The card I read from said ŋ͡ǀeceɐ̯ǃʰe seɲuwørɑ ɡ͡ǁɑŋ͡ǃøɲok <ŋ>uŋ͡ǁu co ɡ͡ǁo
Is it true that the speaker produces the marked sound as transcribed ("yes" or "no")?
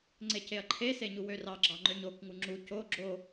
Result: yes